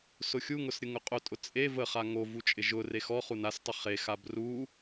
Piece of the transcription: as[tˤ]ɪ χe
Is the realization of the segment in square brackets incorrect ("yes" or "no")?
no